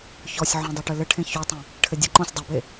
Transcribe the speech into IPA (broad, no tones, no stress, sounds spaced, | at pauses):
ç ɔ sʲ ʕ õ dˤ o ʈ ɘ l ɘ ʈʰ ẽ ç o tˤ ẽ | ʈʰ ɘ dʲ ɐ ǃ õ sʲ dˤ ɘ b e